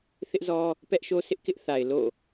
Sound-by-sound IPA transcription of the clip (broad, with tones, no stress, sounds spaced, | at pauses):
θ ɪ˦ ʔ z ɔ˦ | p ɛ˦ ʔ ʃ o˦ sʰ ɪ˦ ʔ k ɪ˦ ʔ θ a˨ ɪ̯ l o̰˦˨